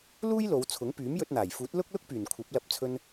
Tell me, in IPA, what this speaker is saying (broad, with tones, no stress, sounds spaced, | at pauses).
l uː˥ j l o˨˧ w t͡sʰ ʊ˨˥ ŋ p yː˨˥ m j ɵ˧ t̚ n̪ aː˨˩ j f uː˨˥ t̚ l ʊ˥ k̚ l ʊ˥ k̚ p yː˨˩ n kʷʰ ɐ˨˥ p̚ l ɐ˧ p̚ t͡sʰ ɵ˧ n